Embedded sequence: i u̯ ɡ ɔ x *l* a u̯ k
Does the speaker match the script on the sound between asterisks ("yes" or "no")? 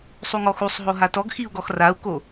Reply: no